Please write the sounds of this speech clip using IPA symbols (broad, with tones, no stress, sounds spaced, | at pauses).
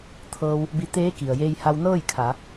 t̪ʰ ɤː˧ w | b i˧ t̪ eː˧˥ k i˩ ə̯ j eː˧ j h a˧ w n ɤː˥˨ j kʰ a˩˧